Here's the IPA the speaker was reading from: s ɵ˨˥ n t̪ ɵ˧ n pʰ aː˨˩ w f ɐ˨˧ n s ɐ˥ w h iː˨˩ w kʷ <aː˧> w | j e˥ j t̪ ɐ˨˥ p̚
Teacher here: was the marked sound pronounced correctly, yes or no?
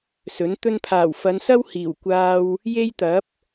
yes